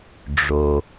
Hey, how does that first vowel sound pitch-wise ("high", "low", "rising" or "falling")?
low